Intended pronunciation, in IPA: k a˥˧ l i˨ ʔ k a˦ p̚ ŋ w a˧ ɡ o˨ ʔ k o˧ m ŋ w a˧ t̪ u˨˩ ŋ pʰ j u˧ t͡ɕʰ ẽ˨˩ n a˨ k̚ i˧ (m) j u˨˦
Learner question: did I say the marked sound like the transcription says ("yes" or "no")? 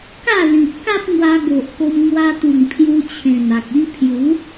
no